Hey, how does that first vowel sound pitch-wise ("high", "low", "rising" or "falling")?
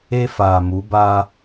high